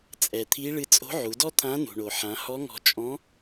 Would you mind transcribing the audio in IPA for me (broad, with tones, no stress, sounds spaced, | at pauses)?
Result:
t͡sʼ ɛ˩ t̪ʰ i˧˥ ɭ ɨ˧ t͡sʼ o̤˧˥ ʕ u˩˧ d ɔ˥ t̪ʰ ã˧˥ n ṳ˩ ɳ o˩ ħ ã˩˧ h ɔ˧˥ ŋ ɔ̤˧ t͡ʃʼ ɔ̃˧˥